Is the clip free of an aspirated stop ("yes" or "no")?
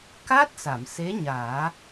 yes